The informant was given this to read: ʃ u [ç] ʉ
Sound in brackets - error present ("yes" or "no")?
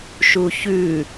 no